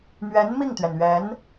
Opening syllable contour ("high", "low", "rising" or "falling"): rising